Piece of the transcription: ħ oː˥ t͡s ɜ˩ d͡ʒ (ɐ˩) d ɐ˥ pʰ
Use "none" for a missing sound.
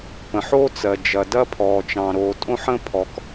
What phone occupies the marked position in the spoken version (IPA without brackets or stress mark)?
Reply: ɐ˩